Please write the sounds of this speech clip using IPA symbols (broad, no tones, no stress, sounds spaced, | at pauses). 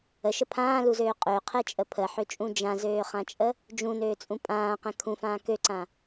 ə ʃ ə pʰ ãː l u z øː qʼ ø qʰ ɛ t͡ʃʼ ə pʰ ə ħ ø t͡ʃʼ ũ d͡ʒ ã z øː χ ã t͡ʃʼ ə | d͡ʒ ũ n øː t͡sʼ ũ pʼ ãː q ɛ̃ kʰ ũ f ãː k ø ǀ ã